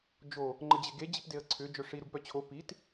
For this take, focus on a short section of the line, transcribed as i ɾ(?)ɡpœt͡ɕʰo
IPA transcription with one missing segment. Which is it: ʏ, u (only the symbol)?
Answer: u